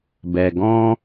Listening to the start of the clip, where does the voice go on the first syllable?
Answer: low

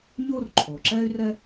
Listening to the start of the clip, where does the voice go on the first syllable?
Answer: high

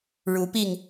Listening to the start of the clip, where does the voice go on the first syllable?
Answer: rising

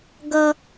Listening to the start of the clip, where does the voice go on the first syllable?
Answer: high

